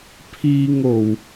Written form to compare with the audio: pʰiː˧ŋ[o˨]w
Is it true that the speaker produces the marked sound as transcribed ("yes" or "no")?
yes